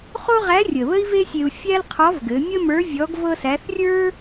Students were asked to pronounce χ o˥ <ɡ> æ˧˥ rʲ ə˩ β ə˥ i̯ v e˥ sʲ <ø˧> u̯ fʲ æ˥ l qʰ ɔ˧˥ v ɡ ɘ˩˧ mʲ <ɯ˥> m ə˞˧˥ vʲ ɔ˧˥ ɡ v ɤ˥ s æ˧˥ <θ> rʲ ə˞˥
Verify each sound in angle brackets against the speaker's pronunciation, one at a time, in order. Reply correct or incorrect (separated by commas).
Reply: incorrect, incorrect, incorrect, correct